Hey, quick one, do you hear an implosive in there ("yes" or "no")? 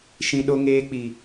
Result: yes